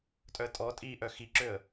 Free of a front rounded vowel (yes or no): no